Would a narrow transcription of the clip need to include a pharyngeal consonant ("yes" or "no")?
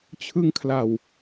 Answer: no